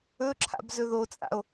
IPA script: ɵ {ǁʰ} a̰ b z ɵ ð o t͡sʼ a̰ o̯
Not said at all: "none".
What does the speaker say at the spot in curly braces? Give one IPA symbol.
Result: ǁʰ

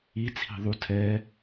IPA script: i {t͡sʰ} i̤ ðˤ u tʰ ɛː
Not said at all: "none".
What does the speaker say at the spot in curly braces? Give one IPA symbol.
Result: t͡sʰ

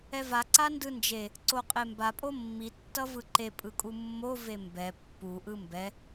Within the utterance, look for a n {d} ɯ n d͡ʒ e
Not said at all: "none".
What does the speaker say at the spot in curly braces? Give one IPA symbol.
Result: d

